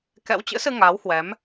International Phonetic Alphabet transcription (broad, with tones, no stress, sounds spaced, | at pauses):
k ɛ̰˧˥ w t͡ɕ ɨ̰˧˥ s ɨ˧ ŋ aː˨˦ w h w ɛ˨˦ m